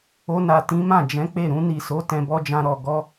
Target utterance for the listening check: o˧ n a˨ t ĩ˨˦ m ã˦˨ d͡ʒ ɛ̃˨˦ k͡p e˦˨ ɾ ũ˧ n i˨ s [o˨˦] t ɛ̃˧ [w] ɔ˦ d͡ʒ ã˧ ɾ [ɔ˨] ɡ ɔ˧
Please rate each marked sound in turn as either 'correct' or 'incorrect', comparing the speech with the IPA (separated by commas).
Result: correct, incorrect, correct